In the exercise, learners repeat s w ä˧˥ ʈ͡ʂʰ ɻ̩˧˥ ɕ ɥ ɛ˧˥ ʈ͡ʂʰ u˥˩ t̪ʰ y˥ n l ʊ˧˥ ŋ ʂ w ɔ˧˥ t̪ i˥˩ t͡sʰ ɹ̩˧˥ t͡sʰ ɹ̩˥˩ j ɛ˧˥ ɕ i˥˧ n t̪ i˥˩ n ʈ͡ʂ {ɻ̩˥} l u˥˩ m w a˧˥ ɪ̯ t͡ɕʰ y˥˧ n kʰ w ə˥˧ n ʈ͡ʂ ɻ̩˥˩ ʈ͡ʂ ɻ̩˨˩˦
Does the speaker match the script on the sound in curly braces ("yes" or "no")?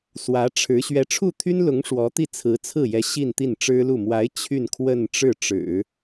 yes